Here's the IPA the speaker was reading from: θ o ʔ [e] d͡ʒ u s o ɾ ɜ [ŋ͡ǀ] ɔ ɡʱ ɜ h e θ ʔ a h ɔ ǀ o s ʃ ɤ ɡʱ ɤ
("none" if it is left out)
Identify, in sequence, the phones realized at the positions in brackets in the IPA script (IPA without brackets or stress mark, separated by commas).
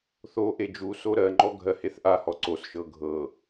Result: e, ŋ͡ǃ